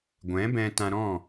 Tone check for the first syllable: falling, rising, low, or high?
rising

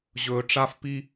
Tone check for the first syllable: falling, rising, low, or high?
low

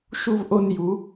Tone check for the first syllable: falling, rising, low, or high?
high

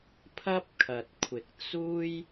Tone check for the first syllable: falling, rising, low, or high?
high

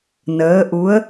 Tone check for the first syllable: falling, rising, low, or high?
rising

